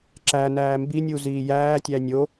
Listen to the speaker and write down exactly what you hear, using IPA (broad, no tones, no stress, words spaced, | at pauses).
ǁænæː mbinʲu ziːjæːtʲæ nʲo